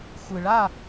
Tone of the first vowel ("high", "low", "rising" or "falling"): low